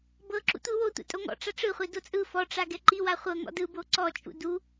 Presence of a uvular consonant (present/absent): present